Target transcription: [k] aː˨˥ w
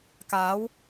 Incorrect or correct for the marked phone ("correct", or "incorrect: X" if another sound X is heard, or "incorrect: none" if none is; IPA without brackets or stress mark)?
correct